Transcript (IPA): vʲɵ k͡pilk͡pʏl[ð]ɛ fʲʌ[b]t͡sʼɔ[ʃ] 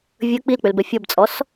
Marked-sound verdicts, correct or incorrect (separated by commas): incorrect, correct, incorrect